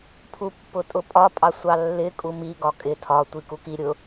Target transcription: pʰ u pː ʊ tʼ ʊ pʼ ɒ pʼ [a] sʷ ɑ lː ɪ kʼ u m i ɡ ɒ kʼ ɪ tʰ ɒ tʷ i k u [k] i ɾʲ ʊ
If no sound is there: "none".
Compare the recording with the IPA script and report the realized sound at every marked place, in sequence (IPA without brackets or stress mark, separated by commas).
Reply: ɑ, k